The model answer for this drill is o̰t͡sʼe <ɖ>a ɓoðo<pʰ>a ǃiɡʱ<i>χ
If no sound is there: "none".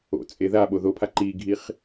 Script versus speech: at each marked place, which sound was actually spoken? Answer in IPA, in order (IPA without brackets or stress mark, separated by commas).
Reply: ð, pʰ, i